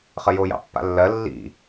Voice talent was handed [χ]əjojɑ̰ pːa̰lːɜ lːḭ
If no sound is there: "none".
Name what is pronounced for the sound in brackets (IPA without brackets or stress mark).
χ